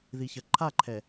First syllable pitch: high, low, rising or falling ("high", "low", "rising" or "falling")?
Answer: low